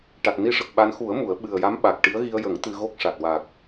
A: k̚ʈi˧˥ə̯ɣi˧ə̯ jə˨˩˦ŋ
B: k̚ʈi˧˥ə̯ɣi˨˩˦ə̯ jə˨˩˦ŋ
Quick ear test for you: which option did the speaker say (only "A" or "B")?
A